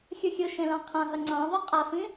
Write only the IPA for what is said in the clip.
xʲɯxʲɯʃẽ lɑ̃qʰãɦɐ ŋ͡ǀɑ̃ðˤʊ qʼafĩ

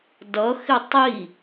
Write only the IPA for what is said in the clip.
dʌxɪ tˤi

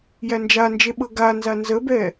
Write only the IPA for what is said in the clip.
jænd͡ʒand͡ʒe ɓɤɡanza nzəbɛ

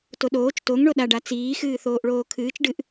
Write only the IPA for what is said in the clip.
toɗoːt͡ʃ toŋ ɳoɗaɖa t͡siː xɨːθoːʔɭoːkʰɨːt͡ʃ ɖɨʔ

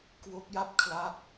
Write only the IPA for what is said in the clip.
kwo˦˥k̚ja˥˩p̚kʰla˦˥k̚

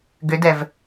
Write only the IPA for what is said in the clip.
ɡʏdɛv

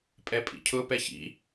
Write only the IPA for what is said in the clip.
pʼɛpʼḭcʰʊ pɛçḭ

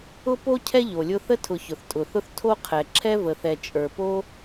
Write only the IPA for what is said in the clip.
ʊ˥po˥ cʰɛ˥ʎo˩lʲʊ˦θə˥ tʰʊ˨çʊ˩θtʼʊ˩θʊ˦θ tʰo˥qʰɛ˨ ǁʰɛ˦və˨θɛ˨ t͡ʃʼə˞˩po˦

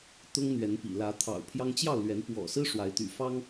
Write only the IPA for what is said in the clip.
t̪ʊ˦ŋn̪ɥɛ˨˦npḭ˨˩ lä˨˦ t̪ʰɑ̰˨˩ʊ̯pʰjɑ˦ŋ t͡ɕjɑ˥˨ʊ̯lɥɛ˨˦npwɔ̰˨˩sɹ̩˦ ʂwa˨˦ɪ̯t̪y̰˨˩fɑ˦ŋ

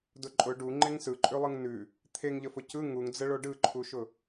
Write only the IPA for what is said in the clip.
dʊǃʼʊ ɖu ŋ͡ǃeŋsɯǃʼʉlˠɯŋ nʉ | t̪ʰeŋʎəfʊ cɯ ŋuŋd͡zəɭo ɖɯǃʰuʃʊ

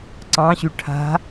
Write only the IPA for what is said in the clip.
ǀɑ̃ɕy ʈʰa̤

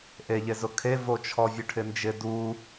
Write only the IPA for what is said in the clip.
ʔeʎezʊ kʰevo t͡ʃʰɔvʲʊʈʰɪnd͡ʒɪ du

